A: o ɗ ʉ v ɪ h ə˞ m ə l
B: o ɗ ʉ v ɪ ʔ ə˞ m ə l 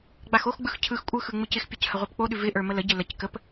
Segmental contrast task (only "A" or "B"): B